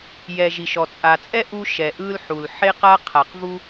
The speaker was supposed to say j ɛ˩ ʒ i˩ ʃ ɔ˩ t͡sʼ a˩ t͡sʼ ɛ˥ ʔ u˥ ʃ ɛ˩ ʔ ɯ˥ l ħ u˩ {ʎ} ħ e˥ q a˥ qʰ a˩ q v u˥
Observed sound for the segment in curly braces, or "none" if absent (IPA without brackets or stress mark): l